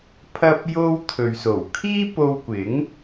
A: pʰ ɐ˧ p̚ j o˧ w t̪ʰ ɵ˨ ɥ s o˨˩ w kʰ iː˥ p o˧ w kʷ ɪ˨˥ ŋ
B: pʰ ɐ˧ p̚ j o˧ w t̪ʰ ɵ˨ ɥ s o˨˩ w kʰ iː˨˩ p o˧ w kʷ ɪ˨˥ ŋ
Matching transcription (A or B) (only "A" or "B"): A